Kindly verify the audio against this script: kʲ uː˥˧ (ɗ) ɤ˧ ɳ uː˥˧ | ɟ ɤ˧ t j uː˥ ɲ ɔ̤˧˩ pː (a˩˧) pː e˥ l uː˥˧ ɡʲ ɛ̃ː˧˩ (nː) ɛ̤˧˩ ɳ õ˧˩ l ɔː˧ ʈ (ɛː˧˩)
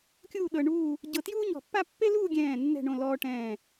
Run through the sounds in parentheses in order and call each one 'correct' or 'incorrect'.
correct, incorrect: a˥˧, correct, incorrect: ɛ̃ː˧˩

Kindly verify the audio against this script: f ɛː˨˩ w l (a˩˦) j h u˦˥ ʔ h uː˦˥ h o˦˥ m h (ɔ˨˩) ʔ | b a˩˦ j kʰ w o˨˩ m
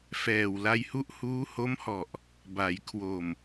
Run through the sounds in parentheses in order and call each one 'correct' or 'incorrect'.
incorrect: a˧, correct

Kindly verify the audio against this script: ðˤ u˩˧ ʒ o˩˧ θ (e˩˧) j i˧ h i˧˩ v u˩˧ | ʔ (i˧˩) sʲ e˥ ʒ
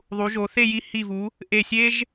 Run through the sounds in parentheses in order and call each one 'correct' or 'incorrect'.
incorrect: e˥˧, incorrect: e˧˩

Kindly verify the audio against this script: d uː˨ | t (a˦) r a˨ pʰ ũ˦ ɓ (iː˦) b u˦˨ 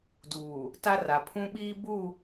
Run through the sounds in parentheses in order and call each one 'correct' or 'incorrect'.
correct, correct

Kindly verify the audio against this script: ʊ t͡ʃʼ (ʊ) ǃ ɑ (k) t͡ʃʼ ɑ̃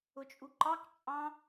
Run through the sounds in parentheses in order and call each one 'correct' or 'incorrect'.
incorrect: u, correct

